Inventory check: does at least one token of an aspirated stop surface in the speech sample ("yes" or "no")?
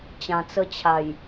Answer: yes